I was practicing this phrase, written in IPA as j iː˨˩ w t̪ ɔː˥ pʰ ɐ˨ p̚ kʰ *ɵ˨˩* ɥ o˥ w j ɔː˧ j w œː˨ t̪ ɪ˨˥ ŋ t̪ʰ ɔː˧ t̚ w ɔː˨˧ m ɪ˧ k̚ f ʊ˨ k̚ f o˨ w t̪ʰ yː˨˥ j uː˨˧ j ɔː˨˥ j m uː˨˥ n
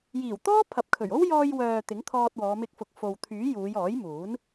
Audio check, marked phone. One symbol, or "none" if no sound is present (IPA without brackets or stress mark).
ɵ˨˩